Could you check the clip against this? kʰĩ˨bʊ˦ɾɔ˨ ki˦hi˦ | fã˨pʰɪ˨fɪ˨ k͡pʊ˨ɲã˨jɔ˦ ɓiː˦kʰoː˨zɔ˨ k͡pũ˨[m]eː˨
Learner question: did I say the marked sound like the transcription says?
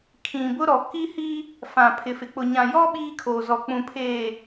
no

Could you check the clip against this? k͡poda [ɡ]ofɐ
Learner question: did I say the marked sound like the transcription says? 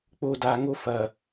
no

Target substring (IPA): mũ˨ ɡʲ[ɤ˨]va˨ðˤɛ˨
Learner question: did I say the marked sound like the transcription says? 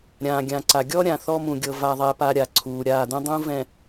yes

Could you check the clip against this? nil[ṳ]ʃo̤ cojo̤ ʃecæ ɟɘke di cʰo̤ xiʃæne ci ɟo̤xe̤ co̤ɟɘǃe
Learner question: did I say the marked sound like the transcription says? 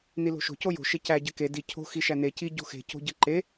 no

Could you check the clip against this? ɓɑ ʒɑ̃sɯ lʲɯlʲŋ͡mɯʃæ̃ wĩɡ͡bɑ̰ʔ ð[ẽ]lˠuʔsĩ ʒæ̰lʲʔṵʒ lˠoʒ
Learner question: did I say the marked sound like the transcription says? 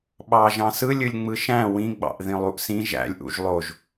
no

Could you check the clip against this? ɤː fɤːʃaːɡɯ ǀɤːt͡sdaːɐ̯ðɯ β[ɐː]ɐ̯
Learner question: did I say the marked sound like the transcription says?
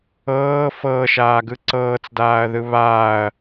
no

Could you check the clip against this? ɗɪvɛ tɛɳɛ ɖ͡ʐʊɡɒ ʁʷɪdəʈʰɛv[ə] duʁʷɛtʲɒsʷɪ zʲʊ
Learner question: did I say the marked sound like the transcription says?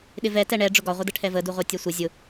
yes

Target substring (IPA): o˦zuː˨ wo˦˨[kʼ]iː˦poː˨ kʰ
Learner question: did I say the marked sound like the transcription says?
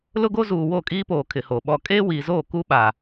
yes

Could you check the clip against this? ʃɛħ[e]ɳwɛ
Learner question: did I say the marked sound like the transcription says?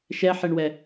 yes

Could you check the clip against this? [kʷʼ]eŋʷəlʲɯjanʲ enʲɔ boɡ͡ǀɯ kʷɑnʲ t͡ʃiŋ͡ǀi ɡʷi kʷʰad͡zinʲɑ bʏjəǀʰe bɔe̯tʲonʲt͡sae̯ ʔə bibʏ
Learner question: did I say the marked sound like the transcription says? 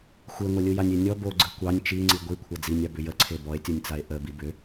no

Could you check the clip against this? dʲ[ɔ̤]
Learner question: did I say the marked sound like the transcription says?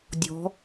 yes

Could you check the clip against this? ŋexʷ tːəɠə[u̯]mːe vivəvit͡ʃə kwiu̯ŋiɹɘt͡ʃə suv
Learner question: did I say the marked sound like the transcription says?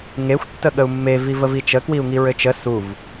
yes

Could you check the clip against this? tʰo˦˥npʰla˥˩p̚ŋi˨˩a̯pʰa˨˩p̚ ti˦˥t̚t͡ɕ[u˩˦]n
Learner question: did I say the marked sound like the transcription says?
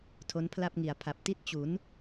yes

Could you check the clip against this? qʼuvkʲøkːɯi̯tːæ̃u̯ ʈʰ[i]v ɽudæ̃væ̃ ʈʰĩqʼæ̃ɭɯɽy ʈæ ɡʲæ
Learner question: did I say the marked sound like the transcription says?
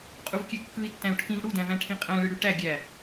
no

